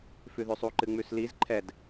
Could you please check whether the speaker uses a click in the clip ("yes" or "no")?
yes